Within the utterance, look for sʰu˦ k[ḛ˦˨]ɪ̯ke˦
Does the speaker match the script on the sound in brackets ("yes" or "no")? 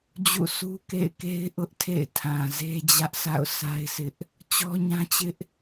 yes